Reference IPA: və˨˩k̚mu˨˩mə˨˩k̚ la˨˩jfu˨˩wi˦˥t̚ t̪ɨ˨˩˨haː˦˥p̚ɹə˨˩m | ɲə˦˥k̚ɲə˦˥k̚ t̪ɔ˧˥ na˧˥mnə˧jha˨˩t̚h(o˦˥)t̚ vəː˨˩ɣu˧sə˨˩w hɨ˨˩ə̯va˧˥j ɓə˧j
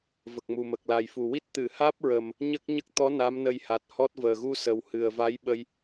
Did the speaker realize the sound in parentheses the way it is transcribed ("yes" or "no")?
no